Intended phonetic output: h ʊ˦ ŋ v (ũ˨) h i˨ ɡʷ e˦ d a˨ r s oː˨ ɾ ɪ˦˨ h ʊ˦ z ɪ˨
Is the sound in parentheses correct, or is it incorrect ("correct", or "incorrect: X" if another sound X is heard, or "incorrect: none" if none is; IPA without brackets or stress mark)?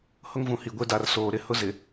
correct